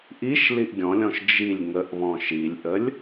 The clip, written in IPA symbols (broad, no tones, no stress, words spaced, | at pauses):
ʔiʃ liʔɡʲɔ̃lʲɔ̃ʃ d͡ʒilʲ ŋəʔβɔ̃ ʃilʲʔəlʲ